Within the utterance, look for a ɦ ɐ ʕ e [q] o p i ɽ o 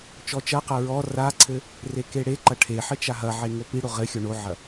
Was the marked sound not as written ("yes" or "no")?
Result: yes